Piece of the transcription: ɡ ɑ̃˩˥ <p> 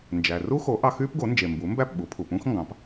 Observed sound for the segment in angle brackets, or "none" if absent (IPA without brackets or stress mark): p